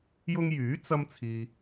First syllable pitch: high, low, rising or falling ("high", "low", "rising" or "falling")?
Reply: high